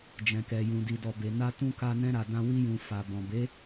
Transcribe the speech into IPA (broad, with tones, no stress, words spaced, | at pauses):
d͡ʒɛ̃˨kɛ˨jũ˨di˨ dɔ˨be˨na˧tũ˧ ka˧nɛ̃˧ ɾa˨dã˧ wi˧jũ˨ fa˨bɔ̃˨ be˨˦